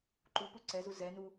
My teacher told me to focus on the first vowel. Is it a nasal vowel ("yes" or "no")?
no